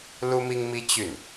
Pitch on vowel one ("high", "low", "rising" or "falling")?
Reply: high